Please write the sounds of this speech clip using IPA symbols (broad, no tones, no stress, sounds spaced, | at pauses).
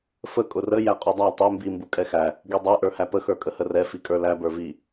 f ə kʼ ʊ r ə j æ qʼ u dˤ æ tˤ ɛ m b i m b u kʼ ɛ x æ | ɡ i dˤ ɛ ʔ ə˞ h æ p ə x ə˞ kʼ ə h ə r ɛ f i kʼ ə˞ l æ b ə˞ v i